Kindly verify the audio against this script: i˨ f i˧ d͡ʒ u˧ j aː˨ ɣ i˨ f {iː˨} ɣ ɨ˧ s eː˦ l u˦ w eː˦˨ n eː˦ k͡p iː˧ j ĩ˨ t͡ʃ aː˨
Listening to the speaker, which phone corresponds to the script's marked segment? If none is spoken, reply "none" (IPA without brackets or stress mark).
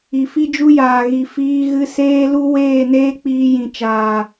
iː˧